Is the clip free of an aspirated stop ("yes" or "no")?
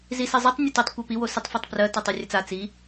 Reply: yes